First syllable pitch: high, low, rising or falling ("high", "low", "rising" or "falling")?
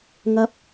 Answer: high